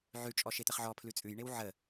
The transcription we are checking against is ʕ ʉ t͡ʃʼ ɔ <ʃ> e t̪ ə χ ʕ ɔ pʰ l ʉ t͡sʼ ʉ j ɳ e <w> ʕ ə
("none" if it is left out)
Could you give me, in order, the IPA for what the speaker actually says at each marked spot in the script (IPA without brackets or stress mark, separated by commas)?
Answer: ʃ, w